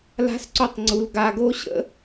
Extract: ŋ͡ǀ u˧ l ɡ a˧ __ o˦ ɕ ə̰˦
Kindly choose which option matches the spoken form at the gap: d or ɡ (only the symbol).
ɡ